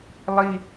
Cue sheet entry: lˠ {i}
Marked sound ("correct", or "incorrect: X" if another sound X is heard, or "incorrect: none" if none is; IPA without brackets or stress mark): correct